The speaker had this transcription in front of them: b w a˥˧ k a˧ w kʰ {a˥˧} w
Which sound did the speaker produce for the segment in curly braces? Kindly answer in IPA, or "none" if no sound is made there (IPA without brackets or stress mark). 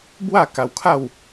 a˥˧